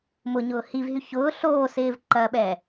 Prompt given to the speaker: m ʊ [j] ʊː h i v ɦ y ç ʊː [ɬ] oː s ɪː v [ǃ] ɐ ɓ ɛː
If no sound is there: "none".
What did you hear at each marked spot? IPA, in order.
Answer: ɲ, ɬ, ǃ

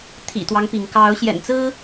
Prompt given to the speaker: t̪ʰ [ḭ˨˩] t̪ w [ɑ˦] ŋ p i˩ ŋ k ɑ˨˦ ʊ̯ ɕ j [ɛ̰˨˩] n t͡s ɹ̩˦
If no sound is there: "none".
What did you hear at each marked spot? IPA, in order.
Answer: ḭ˨˩, ɑ˦, ɛ̰˨˩

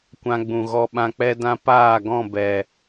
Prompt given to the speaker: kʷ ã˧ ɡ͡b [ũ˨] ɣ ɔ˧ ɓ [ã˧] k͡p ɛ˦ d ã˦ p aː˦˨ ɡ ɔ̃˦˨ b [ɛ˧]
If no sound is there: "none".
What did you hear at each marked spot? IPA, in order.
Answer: ũ˨, ã˧, ɛ˨

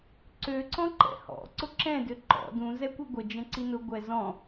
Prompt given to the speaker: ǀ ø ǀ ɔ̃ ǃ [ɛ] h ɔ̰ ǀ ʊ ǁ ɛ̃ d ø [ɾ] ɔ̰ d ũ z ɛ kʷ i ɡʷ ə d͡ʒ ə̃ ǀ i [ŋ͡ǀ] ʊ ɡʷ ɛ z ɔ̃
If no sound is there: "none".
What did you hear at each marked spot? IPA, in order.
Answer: ɛ̰, ǃ, n

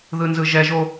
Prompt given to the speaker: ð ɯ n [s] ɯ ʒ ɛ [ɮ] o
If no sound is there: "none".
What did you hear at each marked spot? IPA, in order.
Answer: z, ʒ

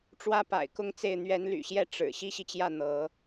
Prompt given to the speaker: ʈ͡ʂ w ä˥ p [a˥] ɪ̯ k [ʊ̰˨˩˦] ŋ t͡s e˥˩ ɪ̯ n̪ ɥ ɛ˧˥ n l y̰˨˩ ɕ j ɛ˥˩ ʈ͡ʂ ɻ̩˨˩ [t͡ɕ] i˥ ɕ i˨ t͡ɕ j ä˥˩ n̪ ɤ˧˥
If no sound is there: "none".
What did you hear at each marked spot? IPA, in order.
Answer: a̰˨˩, ʊ˥˧, ɕ

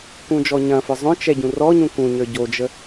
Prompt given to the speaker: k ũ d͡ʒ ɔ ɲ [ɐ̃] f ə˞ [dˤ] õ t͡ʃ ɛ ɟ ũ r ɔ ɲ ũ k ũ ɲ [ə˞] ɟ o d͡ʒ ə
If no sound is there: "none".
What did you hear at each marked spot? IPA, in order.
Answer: ɐ̃, zˤ, ə˞

